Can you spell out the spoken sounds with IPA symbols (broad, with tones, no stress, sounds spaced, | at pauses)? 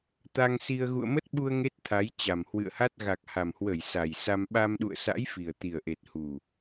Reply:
t̪ a˧ ŋ s i˧ ə̯ ɣ ṵ˧˨ ə̯ m ə˦˥ t̚ ɓ u˧ ə̯ ŋ e˦˥ t̚ t̪ʰ a˨˦ j t͡ɕ a˨˩ m h w ɨ̰˧˨ ə̯ h a˦˥ t̚ ɣ a˨˩ k̚ h a˨˩ m h w ə˧˩ j s a˨˩ j s a˧ m ɓ a˧ m ɗ ṵ˧˨ ə̯ s a̰˧˥ j f i˨˩ ə̯ t̪ i˨˩ ə̯ ʔ e˨˩ t̚ h u˨˩